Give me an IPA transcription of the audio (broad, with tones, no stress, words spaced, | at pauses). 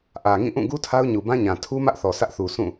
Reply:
ʔä˨ŋĩ˦˨ʔũ˦˨ ɡu˦ tʰa˦ʊ̯ɲu˨bã˦ɲã˨ tʰu˦mä˦ʔθɔ˨ sʰä˦ʔθu˨ sʰũ˦˨